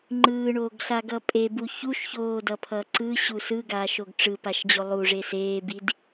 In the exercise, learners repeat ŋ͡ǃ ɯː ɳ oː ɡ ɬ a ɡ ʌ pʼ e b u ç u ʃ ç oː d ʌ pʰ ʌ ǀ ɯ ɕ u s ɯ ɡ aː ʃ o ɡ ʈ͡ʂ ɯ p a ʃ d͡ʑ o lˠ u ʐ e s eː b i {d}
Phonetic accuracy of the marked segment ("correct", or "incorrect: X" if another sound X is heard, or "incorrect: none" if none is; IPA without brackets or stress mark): correct